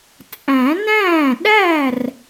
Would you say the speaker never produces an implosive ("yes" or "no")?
no